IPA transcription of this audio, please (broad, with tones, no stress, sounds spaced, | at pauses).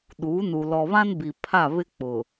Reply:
ɗ uː˨˦ n u˨ l ɔ˨ β ã˦ n b i˨ pʰ a˦˨ β ɪ˦ k͡p ʊ˨